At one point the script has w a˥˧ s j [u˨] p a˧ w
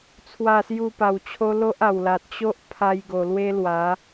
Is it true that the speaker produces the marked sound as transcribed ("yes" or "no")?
no